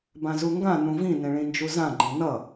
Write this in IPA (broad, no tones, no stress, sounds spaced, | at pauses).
b ã z u ŋ ɡ ã n ũ v ĩ n ẽ ɭ ĩ n d͡ʒ u z ã ɡ͡ǃ ẽ n ʌ